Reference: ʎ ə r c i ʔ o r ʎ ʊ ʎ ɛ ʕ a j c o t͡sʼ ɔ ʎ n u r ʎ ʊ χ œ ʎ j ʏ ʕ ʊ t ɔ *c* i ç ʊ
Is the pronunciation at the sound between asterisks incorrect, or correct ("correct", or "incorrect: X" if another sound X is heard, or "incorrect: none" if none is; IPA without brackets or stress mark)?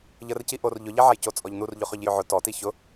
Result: incorrect: t